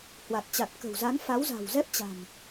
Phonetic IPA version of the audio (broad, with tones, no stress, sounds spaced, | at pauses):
h w a˨˩ t̚ t͡ɕ a˨˩ t̚ k ə̤˨˩ w z a˨˦ n f a˨˦ w z a̤˨˩ w z ɛ˦˥ p̚ t͡ɕ a̤˨˩ m